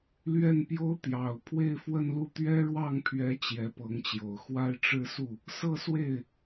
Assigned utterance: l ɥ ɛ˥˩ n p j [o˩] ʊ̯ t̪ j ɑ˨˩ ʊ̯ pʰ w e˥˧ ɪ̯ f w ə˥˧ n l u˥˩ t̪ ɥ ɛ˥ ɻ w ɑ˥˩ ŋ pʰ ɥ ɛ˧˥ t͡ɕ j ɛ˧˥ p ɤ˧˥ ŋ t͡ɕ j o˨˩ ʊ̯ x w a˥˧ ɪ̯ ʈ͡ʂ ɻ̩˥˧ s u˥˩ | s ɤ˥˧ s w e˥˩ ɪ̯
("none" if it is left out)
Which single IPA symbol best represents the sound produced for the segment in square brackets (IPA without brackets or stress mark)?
o˥